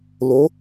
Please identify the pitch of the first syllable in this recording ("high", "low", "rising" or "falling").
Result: rising